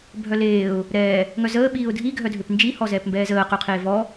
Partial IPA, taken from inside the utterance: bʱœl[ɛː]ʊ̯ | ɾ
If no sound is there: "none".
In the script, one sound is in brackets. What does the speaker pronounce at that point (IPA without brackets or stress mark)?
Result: eː